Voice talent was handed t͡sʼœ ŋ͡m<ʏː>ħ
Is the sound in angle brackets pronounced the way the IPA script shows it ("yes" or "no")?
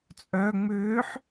yes